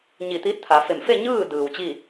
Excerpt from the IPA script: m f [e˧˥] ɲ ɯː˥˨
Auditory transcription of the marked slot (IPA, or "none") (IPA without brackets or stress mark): e˥˨